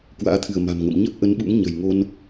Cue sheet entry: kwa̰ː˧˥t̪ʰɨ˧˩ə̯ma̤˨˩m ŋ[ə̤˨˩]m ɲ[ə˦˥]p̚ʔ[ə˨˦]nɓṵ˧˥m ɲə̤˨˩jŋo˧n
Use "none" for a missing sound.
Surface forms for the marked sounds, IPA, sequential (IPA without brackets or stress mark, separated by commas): ə̰˧˨, ə˦˥, ə˨˦